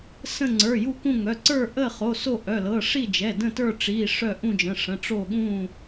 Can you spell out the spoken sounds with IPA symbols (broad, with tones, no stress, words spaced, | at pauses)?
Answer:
sə̃˦˨ ŋ͡ǀə˞˩˧˩ju˦˨kũ˦˨ŋœ˩˧˩ ǀə˞˦˨ ʔə˦˨χo˩˧˩ so˦˨ʔœ˩˧˩lɤ˩˧˩ ʂi˦˨d͡ʒɛ˩˧˩ də̃˦˨tə˞˦˨ʈ͡ʂi˩˧˩ ʂœ˦˨ ʔũ˦˨d͡ʒə̃˩˧˩ʂə̃˩˧˩ ʈ͡ʂo˦˨ɠũ˦˨